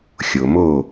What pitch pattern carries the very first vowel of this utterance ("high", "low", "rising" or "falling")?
low